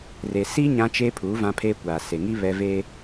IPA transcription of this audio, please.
re˨si˦ ɲã˦t͡ʃeː˦ pʰuː˨˦vã˦pʰeː˦ kʷaː˨se˨ŋi˦ βɛ˦ ve˦

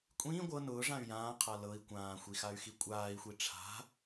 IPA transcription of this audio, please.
kʷʼĩː ɡʷɤ nʊː ʐãy̯jãːqʰa lɤi̯ kʷãːxʷi xay̯xikʷʼaːi̯xʷi ʈ͡ʂʰa̤

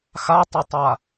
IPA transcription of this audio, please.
xatˤɛtˤa

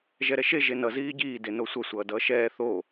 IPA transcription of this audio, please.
ʒɛɾɛʃe ʒenʌ ziːɟiː denosʷʌ sʷʌːdʌːʃɛː θo

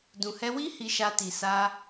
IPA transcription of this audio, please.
dũ˨hɛ˧wi˦ hi˧ʃa˧ ti˨sa˧

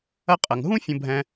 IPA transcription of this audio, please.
ɐ˦qʼɐ˨ŋ ɦũ˥ fʲə̃˦bʱɛ̃˦

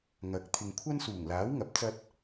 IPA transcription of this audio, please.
ŋɐ˨˥k̚ t̪ʰɪ˨ŋkʷʰɐ˥nsuː˨˩ŋlaː˨˥w ŋɐ˨˥p̚t͡sɐ˥t̚

